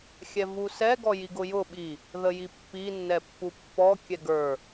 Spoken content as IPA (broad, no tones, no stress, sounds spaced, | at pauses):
xʲ ɛ v u s ɛ ɡ ɔ j i ɡ ʊ j ʊ ɓ i | ð ə j i pː i nː ɛ pː u pː ɔ kʲ ɛ ɡ ə˞